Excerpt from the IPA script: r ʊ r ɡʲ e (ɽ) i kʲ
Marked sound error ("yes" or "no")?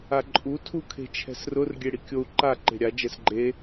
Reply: no